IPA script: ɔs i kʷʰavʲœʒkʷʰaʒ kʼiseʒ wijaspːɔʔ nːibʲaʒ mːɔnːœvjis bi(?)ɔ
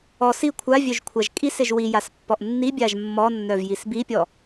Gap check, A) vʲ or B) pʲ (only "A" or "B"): B